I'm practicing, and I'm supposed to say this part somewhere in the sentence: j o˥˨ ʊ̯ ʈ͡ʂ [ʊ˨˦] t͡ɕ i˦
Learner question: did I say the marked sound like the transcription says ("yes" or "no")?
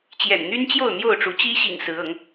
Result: no